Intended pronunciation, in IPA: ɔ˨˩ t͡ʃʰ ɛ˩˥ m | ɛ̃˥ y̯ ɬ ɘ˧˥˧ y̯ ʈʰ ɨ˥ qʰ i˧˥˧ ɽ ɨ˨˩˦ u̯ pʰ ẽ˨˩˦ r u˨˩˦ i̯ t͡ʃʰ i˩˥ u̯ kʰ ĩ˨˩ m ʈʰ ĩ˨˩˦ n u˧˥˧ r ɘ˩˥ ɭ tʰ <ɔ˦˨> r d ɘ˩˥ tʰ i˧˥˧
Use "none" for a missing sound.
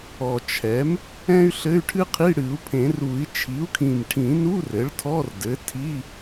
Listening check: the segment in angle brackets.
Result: ɔ˧˥˧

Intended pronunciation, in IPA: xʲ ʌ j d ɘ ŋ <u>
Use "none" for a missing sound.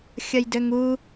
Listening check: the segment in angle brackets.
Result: u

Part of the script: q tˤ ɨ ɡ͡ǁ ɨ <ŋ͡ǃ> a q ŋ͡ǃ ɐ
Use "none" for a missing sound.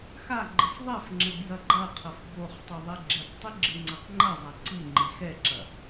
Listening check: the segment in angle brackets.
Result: ŋ͡ǀ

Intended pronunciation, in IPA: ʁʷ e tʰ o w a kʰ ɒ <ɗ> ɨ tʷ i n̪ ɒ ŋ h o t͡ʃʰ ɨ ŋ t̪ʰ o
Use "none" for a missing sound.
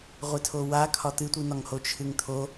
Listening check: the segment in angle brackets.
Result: t̪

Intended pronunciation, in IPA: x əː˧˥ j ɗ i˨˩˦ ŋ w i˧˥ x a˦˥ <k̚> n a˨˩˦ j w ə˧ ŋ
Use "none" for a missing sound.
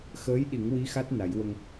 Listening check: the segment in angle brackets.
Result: t̚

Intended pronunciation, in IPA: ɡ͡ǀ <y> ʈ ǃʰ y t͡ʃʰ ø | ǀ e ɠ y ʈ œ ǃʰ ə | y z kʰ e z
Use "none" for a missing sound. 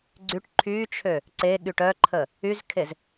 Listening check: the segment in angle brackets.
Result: y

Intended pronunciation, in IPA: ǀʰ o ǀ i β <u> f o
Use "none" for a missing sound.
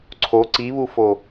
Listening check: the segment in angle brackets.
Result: u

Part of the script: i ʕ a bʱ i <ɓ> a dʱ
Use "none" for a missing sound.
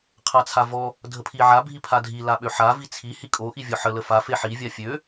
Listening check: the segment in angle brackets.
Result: pʰ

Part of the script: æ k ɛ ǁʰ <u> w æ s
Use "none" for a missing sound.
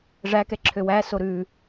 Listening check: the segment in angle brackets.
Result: ø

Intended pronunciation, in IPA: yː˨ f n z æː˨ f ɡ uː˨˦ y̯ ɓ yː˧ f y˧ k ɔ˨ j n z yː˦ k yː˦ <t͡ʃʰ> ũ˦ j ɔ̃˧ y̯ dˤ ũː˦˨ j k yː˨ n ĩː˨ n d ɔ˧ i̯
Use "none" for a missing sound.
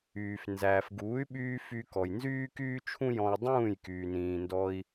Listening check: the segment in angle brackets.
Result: t͡ʃʰ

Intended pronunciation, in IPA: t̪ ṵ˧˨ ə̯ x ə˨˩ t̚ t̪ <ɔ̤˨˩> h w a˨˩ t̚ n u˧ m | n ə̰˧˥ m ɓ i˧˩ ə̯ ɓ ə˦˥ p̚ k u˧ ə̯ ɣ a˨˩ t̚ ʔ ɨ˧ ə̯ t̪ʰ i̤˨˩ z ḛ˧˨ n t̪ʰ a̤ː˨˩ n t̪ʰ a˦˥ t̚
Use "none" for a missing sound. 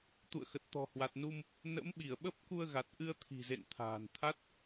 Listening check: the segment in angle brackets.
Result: ɔ̤˨˩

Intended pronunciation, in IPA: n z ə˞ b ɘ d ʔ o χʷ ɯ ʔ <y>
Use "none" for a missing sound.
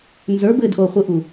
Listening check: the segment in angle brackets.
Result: u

